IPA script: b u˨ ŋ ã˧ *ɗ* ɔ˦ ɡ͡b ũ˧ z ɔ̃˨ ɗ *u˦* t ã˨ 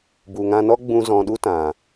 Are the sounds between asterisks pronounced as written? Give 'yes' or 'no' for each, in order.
no, yes

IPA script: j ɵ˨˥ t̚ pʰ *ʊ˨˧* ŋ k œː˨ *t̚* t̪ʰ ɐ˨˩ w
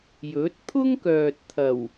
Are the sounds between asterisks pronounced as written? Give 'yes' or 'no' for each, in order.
no, yes

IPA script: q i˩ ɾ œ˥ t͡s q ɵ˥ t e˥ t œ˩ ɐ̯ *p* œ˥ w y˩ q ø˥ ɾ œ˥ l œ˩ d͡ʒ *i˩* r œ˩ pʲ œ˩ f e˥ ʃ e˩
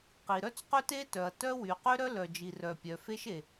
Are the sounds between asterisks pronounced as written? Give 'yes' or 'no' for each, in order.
no, yes

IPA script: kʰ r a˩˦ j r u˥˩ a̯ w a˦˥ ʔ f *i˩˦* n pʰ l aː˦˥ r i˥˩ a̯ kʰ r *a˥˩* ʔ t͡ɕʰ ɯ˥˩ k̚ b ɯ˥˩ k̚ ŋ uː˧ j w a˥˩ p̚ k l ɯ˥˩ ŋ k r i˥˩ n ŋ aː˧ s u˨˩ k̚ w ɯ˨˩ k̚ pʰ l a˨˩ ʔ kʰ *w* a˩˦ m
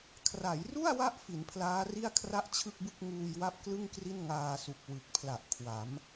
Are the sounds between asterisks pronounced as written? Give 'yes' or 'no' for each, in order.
yes, yes, yes

